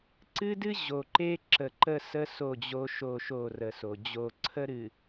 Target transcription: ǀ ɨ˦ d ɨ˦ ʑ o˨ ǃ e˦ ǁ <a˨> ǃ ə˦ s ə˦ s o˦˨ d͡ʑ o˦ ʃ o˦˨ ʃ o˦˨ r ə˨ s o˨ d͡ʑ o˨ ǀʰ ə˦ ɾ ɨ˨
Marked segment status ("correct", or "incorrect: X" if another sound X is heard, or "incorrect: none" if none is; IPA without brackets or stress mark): incorrect: ə˨